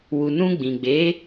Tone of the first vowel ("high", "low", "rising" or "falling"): low